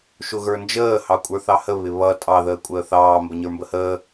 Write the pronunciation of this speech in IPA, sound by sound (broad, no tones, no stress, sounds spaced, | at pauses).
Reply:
ʃ ʊ ɣ ə˞ n d͡ʒ əː h ɑ kʷʼ ə˞ θ ɑ h ə β ɪ β ʌ tʼ ɑ ð əː kʷʼ əː θ ɑː m b ə ɲ ə˞ m b ə h əː